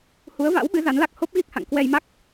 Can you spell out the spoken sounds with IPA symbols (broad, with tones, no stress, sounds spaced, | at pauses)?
h u˨˦ ə̯ v a̰˧˥ w ɓ ɨ˨˦ z a˨˦ n l a˦˥ k̚ h o˦˥ p̚ ɣ i˦˥ k̚ h a̰˧˨ ŋ k w ɛ˧ j m a˦˥ k̚